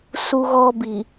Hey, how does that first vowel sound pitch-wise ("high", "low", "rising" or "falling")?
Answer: high